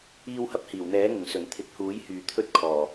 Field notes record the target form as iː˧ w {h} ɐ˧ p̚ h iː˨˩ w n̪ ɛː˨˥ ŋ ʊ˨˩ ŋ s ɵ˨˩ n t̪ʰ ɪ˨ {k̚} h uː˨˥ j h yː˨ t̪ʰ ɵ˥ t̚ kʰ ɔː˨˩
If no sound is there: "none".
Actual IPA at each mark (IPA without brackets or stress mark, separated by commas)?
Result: h, k̚